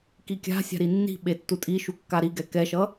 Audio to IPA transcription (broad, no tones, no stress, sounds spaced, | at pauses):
k i kʲ a̤ sʲ a̤ ɾ i nː i̤ ɓ e tː u tʼ i ʃ u kː a ɾ i ɡ ɛ k ɛ ʃ ʌ